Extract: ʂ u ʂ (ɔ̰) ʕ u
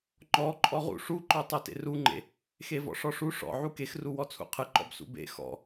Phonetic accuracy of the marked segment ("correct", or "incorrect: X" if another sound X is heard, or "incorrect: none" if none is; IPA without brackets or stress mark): correct